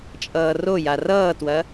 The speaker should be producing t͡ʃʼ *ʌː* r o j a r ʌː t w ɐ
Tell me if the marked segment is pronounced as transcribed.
yes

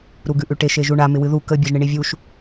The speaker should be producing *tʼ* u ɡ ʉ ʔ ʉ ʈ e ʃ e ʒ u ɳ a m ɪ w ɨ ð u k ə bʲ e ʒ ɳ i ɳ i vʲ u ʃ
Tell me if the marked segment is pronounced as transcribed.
no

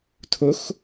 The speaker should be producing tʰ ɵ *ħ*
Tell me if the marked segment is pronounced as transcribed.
no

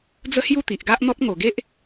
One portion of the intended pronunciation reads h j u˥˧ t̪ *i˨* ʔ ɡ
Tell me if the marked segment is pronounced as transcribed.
yes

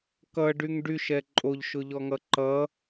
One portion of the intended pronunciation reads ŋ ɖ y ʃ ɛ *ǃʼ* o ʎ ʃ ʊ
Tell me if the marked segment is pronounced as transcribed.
yes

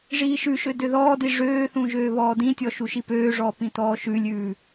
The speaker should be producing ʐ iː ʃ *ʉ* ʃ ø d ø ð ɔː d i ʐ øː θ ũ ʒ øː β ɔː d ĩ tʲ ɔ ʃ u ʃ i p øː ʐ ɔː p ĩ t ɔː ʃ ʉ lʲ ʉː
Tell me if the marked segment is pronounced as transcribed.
yes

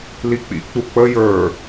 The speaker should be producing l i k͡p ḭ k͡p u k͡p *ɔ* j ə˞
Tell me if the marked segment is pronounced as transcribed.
no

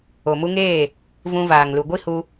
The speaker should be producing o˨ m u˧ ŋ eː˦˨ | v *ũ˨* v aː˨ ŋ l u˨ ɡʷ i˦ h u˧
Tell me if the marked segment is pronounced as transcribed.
no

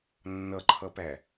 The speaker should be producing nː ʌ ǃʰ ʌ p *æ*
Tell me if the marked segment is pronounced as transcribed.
yes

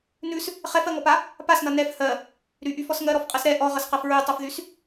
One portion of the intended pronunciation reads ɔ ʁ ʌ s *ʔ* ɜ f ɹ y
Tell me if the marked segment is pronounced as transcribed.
no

